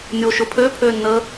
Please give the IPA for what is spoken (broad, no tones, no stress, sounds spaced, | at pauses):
nʲ oː ʃ ʊ pʰ øː pʰ øː nː əː